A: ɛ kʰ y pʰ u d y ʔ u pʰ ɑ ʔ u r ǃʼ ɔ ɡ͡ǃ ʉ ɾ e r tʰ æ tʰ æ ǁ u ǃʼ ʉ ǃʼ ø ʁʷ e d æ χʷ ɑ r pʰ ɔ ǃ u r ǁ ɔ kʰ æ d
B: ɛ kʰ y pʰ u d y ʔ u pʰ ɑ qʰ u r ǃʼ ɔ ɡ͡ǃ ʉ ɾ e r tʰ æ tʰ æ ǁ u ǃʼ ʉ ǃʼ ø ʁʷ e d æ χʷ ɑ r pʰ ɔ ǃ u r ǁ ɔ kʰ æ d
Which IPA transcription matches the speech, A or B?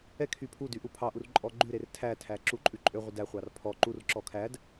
A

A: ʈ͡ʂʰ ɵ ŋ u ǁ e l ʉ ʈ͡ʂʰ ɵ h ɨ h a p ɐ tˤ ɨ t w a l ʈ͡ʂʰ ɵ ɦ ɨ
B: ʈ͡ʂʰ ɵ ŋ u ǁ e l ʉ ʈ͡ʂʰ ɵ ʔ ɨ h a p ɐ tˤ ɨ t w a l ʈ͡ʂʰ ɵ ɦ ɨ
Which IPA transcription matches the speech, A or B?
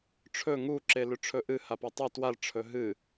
B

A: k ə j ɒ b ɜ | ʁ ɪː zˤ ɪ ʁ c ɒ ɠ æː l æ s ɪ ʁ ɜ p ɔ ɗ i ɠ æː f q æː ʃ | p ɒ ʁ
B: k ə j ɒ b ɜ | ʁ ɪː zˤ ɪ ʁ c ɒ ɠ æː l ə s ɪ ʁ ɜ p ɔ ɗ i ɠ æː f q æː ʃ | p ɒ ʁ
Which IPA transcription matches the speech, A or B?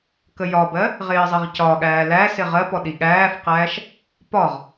A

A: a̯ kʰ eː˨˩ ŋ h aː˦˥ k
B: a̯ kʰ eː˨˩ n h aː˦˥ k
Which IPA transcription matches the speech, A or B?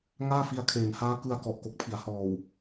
B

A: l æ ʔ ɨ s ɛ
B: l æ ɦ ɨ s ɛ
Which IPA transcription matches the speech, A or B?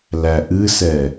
A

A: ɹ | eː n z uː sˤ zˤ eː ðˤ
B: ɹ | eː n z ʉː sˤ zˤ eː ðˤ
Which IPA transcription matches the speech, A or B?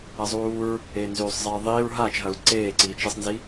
B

